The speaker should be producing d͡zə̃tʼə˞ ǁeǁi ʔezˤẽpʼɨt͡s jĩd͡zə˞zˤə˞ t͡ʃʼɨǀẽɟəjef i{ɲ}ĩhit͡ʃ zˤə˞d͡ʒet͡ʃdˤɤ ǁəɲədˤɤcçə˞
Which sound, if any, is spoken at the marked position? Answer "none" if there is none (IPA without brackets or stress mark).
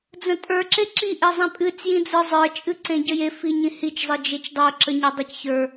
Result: ɲ